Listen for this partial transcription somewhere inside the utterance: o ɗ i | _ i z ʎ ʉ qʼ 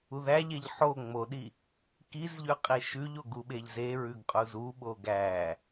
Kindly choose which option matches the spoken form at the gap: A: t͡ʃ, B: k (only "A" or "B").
B